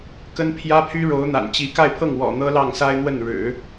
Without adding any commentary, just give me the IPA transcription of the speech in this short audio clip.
k ə˥ n pʰ j ä˥ pʰ y˥ ɻ o˧˥ ʊ̯ n̪ a̰˨˩ n t͡ɕ i˧˥ k a˥˧ ɪ̯ pʰ ɤ˥˩ ŋ w ɔ̰˨˩ n̪ ɤ˥ l ɑ˥˩ ŋ s a˥ ɪ̯ n̪ w ə˥˩ n ɻ ɻ̩˨˩˦

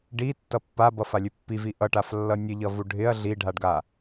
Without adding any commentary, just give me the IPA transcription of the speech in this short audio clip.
ɖ i tː ʌ pː a b ʌ f a lʲ ø pː i v i ʔ ʌ ʈ a f lː ʌ nʲ ə ʎ ʌ v u ɖʱ ɪ ɐ̯ ɮ i ɖʱ a ɖ ɡ a

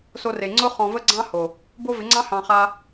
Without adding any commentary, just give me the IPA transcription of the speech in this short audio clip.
s o˧ r e˨ ŋ͡ǀ ʊ˦ χ ɔ̃˧ v ə˦ ɡ͡ǀ ɑ̃˦ h o˨ | b o˦ v ɪ˨˦ ŋ͡ǀ ɑ̃˦ h ɑ̃˧ χ a˧

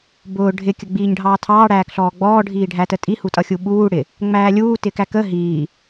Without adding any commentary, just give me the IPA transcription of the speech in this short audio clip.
b ʊː ɖʱ ɪ kʲ ə ɡ͡b iː ɲ ɖʱ ɑː tʰ ɑː ɽ æː k ɬ ɔː ɡ͡b ɔː ɖʱ iː ɖʱ æ t ə tʼ i h u tʼ ʌ xʲ u ɓ uː ɽ ɪ | ŋ͡m æː lʲ uː t ɪ k æ k ə ɦ iː

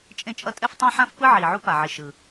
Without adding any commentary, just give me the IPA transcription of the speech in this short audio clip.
t͡ʃʼ ẽ˥ t͡ʃʼ ʌ˥ tʼ ɛ˥ f tˤ ã˥ ħ ã˥ f p ɯ˥ ʕ iː˩ ʕ u˥ p a˩ ʕ i˩ ʃ ɯ˩

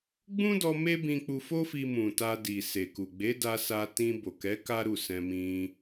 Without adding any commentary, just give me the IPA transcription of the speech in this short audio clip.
ɡ͡b ũ˦ d ɔ˧ m e˦ b ĩ˧ k͡p u˧ f o˦ f i˧ m ũ˨ t a˧ d i˨ s e˨ k u˨ ɡ͡b e˨˦ d a˧ s a˧ t ĩ˧ b o˨ k ɛ˨˦ k a˦ ɾ u˦˨ s ɛ̃˧ m ĩ˧

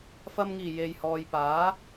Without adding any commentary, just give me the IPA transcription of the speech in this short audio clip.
f ɐ˨ m ŋ iː˨˩ j e˨ j h ɔː˨ j p aː˨˥

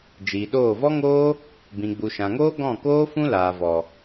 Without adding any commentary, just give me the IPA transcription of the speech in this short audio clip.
d͡ʒ iː˨ ɗ oː˦˨ v ɔ˦ ŋ oː˦ | b ĩ˨ ɡ͡b u˨ ʃ ã˨ ŋ oː˦ ɡ ɔ̃˦˨ k oː˦ f ũ˦ l aː˨ v ɔ˨

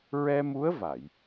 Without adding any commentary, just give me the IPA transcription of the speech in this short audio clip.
ɹ ɛ˧ m u˧˥ ə̯ v a˨˩˨ j

